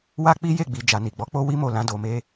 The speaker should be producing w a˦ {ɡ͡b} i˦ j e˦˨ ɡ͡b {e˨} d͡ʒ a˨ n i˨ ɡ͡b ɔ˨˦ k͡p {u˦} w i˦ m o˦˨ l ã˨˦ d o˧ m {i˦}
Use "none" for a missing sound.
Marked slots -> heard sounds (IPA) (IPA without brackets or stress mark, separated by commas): k͡p, i˨, o˦, e˦